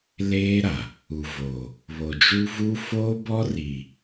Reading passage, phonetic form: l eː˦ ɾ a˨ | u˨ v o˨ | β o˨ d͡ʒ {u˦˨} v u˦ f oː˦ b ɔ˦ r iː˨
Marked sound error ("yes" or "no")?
yes